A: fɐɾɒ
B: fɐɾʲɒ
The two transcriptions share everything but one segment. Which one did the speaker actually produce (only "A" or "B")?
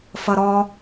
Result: A